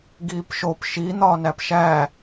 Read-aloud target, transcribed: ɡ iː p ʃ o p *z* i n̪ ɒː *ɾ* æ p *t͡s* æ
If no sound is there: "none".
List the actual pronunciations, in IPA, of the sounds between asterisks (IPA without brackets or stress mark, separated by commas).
ʃ, n, ʃ